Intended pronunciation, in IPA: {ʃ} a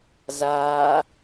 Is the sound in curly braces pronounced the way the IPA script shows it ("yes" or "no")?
no